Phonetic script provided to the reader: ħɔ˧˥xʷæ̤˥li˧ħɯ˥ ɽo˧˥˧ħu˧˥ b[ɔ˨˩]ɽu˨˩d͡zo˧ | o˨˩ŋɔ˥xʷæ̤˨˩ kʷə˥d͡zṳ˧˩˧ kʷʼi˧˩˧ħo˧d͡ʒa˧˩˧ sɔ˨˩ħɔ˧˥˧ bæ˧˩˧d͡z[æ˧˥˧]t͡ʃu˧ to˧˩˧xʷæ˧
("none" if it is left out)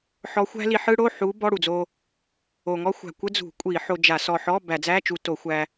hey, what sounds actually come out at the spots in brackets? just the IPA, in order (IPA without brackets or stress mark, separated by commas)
ɔ˧˥˧, æ˧˥˧